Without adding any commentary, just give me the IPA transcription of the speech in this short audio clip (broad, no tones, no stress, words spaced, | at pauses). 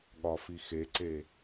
ɠɒfixeǀe